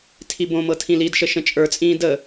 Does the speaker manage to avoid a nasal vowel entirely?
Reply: no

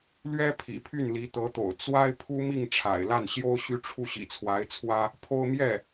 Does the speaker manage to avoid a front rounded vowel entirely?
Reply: no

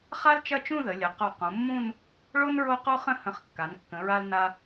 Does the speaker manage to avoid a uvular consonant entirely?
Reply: no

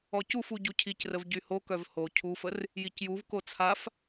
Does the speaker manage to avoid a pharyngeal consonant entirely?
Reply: yes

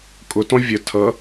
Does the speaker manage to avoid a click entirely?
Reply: yes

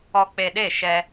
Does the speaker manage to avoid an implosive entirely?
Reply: no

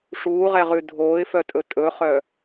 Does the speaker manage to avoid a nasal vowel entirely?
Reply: yes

